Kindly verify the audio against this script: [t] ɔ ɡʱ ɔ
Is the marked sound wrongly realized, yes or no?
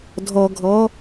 yes